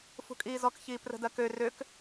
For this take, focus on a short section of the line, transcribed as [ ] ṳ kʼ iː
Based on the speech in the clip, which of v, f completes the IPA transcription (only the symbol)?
f